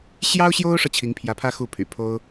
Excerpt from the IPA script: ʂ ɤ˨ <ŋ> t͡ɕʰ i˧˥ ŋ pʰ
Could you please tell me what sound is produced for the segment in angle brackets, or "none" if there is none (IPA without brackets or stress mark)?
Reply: none